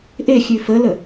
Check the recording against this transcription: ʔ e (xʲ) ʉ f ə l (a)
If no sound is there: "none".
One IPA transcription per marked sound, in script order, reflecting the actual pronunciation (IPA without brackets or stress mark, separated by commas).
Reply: xʲ, ə